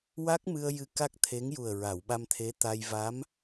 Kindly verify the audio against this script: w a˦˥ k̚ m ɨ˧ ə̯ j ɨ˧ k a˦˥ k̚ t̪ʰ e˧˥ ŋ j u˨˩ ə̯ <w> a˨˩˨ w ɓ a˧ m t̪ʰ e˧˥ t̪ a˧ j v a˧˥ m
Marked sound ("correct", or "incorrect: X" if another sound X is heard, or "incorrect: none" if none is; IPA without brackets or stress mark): incorrect: ɹ